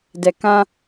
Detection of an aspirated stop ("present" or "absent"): absent